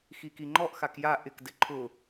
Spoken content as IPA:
x i k i ŋ͡ǃ ɔ ʔ x a k j a ʔ ɪ k d ɪ ǃʰ ʊ

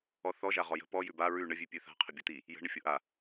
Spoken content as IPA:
ɔ θ ɔ ʒ a ʁ ɔ j ə̤ p ɔ j ʉ b a ɹ ʉ ɳ ə vʲ ʉ pʲ ʉ θ a̤ qʰ ə bʲ o t̪ i | j ə̤ ɳ ə fʲ o ʔ a

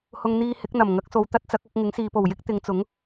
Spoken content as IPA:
h ʊ˧ ŋ n̪ iː˧ h ɪ˨˥ k̚ n̪ ɐ˨˩ m ŋ ɐ˨˥ k̚ s o˨˧ w t̪ ɐ˥ t̚ t͡s ɐ˨˥ k̚ ɐ˨˥ k̚ ŋ ɪ˨˥ ŋ s iː˨˧ p o˨˩ w j ɪ˥ k̚ t̪ ɪ˨˧ ŋ t͡s ʊ˨˥ ŋ

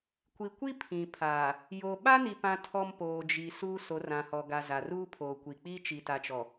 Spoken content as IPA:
kʷ i˨ kʷ i˦ pʰ ĩ˨ pʰ aː˨ | j o˨ ɓ a˦ n i˨ p ã˦ tʰ ɔ˦ m p oː˨ d͡ʒ i˨ s uː˦ s o˨˦ r ã˨ h ɔ˨ ɡ a˨ z a˨ r uː˦ pʰ oː˨ kʷ i˨ k͡p iː˦ t͡ʃ i˨ t a˨ t͡ʃ ɔ˨

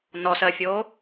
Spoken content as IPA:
n ɔ s ɜ fʲ o

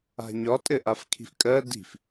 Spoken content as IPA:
a̤ ɲ ɒ tʼ ɘ ʔ a f kʰ i̤ f kʼ ɜ d i̤ f

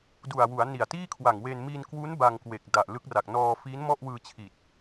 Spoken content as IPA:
d u˨˩ a̯ w u˩˦ a̯ n i˨˩ a̯ t iː˥˩ kʰ w a˨˩ ŋ w eː˧ n m i˧ n k w u˦˥ n b a˧ ŋ k w e˨˩ k̚ d a˨˩ ʔ l ɯ˦˥ k̚ r a˨˩ k̚ n ɔː˧ f iː˦˥ n m ɔ˥˩ ʔ w ɯː˧ t͡ɕʰ i˨˩ t̚

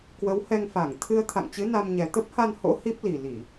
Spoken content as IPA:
k w ə˨˦ w h ɛ˧ ŋ f a˧˩ ŋ t̪ʰ ɨ˧ ə̯ t̪ʰ a̰˧˨ ŋ t͡ɕ ɨ˨˦ n a˧ m ɲ ɛ˨˩ t̪ ə˦˥ p̚ h a˧ n h o̰˧˥ h i˦˥ p̚ l i˨˩ l i˧˩˨

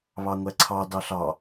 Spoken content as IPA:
β ɑ ŋʷ æ ǀʰ ɑ d ɑ ɬ ɑ

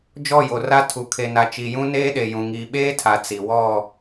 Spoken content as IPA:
d͡ʒ ɔ˦˨ j o˨ r a˦ tʰ u˨ kʰ e˨ n a˨ t͡ʃ i˨ j ũ˦ n eː˦ ɗ e˨ j ũ˨ ŋ iː˨ ɓ eː˦ tʰ a˨ t͡s i˨ w ɔ˦˨

